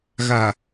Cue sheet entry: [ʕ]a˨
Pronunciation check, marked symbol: incorrect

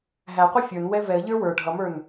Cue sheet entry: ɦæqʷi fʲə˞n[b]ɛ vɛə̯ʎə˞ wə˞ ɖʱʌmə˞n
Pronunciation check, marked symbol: incorrect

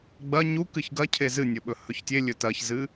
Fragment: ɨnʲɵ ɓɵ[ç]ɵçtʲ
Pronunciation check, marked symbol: incorrect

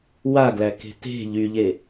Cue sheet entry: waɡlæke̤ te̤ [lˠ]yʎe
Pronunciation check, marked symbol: incorrect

